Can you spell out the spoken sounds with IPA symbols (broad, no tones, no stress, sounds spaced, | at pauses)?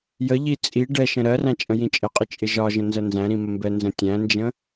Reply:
j ə ʎ i t͡sʼ i ɖ ɛ ʃ ə̃ ɾ ɜ r æ̃ t͡ʃʼ ə̃ j ĩ t͡ʃʼ ə qʼ ɪ t͡ʃʼ ɪ ʒ ɒ ʒ ə̃ n z ɜ n z æ̃ ɾ ĩ m ə m b ɛ n z ə̃ tʲ æ̃ n d͡ʒ ə̃